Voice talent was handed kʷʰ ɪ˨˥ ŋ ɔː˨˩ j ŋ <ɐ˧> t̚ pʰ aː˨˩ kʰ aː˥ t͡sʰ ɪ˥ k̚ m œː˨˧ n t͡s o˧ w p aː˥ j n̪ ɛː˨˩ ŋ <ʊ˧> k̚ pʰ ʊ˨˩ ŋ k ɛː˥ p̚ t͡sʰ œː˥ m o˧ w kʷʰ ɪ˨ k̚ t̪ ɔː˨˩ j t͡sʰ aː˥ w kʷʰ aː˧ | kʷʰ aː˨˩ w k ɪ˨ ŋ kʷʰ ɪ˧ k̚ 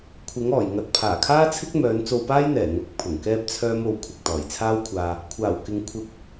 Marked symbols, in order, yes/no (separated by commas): no, no